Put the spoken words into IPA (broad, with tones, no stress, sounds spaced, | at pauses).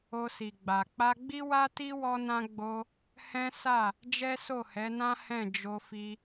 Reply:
o˧ s i˨ ɡ͡b a˨ k͡p a˧ ɡ͡b i˦ w a˦ t i˦ w ɔ˦ n ã˦ ɡ͡b o˧ | h ɛ̃˦ s a˦˨ | d͡ʒ ɛ˦ s o˦˨ h ɛ˨˦ n ã˦ h ɛ̃˦˨ d͡ʒ o˧ f i˧